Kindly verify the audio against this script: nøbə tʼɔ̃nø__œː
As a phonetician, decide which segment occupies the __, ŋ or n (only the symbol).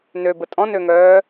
ŋ